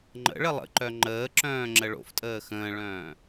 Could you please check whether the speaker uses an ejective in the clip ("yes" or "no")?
yes